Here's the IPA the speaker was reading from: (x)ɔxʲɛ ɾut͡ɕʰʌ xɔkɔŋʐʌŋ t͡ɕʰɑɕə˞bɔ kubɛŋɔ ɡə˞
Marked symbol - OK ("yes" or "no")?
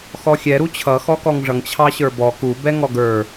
yes